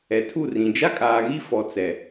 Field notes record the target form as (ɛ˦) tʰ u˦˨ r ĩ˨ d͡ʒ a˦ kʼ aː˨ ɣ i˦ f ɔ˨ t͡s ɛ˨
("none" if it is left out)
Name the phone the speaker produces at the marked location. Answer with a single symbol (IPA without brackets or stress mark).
ɛ˨